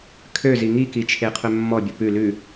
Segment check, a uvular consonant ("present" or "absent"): present